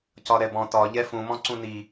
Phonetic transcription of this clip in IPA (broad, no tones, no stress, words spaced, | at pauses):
cɒɾɛbɔ̃ tɒ ʎɛfũmɔ̃ ǀũni